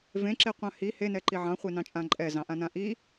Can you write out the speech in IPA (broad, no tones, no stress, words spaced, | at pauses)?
vẽǁeqʷã hi henɛǃi ʕɑ̃χʷenɑ̃t͡ʃʼã ǃʼɛzɑ̃ʔãnã ʔi